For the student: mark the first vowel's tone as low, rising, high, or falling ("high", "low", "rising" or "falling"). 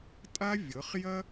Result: high